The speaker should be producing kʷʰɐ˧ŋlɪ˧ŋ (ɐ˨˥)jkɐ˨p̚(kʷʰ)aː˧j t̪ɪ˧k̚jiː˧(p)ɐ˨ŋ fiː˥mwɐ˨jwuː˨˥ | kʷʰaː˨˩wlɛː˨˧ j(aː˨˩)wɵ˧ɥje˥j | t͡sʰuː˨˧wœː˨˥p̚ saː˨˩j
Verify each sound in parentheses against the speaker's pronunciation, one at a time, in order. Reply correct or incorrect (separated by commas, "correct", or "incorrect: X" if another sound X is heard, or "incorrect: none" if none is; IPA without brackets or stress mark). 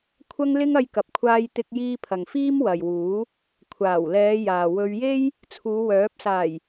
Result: incorrect: ɐ˧, correct, incorrect: pʰ, incorrect: aː˨